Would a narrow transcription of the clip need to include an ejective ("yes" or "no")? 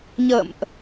no